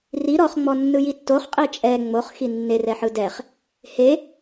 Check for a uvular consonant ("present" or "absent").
present